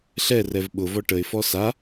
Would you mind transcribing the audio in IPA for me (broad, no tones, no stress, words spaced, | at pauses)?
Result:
ɬɛrɛv ɓʊvɔ ʈəɪ̯fɔ sa